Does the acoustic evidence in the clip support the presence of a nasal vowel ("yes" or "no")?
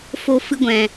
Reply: yes